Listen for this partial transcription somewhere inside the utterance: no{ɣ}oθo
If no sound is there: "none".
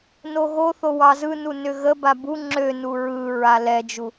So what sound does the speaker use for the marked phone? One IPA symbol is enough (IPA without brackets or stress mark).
ɣ